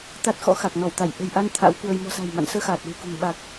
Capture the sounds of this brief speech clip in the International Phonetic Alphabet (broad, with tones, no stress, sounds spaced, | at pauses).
t̪ a˦˥ t̚ x ɔ̰˧˥ x a˨˩ k̚ n ɔ˧˩ w t̪ a˧˩ j ʔ ə̤˨˩ j ʔ a˧ n t̪ʰ a̰˧˥ w k w ə˧ j m ɔ̤˨˩ s a̤˨˩ j m a̰˧˨ n s əː˧ x aː˨˩ t̚ l ɨ̤˨˩ k ṳ˨˩ ŋ ɓ a˨˩ k̚